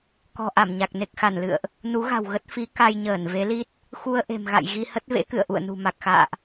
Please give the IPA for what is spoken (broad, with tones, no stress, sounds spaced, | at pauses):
k ɔ̤˨˩ ʔ a˧˩ m ɲ a˨˩ k̚ n e˨˩ k̚ x a˧˩ n l ɨ̰˧˨ ə̯ ʔ | n u˨˦ ɣ a̤˨˩ w ɣ ə˦˥ t̚ f i˨˦ k a˧ j ɲ əː˧˩ n v e˨˦ l i˦˥ t̚ | x u˧ ə̯ ʔ e̤˨˩ m ɣ a̰˧˨ j ɣ i˧ h ə˦˥ t̚ v ḛ˧˥ k ɨ̰˧˨ ə̯ ʔ ṵ˧˨ ə̯ n ṳ˨˩ m a˨˩ k̚ x a̰ː˧˨ ʔ